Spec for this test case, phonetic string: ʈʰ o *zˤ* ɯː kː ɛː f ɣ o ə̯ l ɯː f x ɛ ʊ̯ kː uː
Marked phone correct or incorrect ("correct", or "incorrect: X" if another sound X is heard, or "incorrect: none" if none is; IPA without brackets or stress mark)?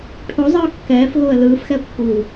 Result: correct